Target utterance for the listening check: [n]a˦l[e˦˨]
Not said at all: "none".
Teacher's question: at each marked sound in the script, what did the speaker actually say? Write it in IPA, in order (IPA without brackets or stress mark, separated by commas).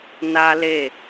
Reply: n, e˦˨